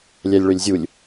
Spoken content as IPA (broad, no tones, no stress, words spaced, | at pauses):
lʲælʲɭølʲzʲulʲ